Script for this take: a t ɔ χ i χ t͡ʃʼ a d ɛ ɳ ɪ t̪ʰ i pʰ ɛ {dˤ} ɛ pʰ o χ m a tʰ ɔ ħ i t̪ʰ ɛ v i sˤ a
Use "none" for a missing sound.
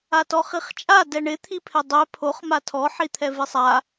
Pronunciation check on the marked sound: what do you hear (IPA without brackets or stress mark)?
dˤ